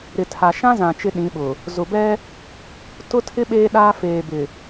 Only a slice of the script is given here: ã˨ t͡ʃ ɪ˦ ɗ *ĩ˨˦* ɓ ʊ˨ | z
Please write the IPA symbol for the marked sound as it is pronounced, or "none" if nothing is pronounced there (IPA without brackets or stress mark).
ĩ˨˦